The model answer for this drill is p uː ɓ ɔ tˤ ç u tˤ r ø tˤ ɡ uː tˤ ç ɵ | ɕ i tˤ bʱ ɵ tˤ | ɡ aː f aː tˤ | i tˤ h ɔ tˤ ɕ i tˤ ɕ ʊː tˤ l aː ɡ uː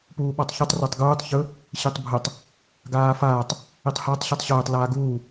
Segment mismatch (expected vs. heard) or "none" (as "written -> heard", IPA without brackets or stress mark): none